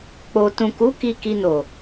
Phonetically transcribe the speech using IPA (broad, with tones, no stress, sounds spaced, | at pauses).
k͡p o˨ t ũ˨ k u˨˦ k i˧ k i˧ n o˨